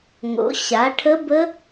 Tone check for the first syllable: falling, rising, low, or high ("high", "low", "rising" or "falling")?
rising